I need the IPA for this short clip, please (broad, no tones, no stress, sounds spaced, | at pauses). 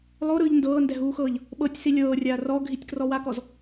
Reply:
lˠ o ɾ ɯː ʎ n d ɤː n d ɛ ɦ uː x ɤː ʎ | ɓ ɤ tʲ s i lʲ ɤː rʲ aː r ɔ ɡʱ i tʲ k r ɔ w a k ɔ z